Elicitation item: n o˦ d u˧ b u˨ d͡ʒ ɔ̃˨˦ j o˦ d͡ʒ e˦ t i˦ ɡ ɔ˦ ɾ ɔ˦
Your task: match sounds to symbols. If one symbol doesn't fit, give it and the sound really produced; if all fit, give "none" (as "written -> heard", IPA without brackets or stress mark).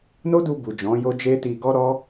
i˦ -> i˧